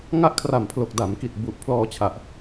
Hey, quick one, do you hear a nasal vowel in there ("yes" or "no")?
no